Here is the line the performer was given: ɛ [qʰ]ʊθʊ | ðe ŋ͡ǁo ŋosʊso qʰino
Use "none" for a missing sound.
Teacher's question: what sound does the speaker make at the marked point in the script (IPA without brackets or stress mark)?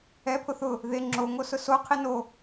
pʰ